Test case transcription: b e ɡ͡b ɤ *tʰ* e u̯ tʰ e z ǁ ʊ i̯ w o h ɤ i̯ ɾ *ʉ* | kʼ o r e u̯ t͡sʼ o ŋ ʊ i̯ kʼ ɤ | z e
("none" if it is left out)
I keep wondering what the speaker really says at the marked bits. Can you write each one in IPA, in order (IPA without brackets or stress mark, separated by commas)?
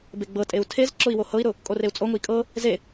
tʼ, ʊ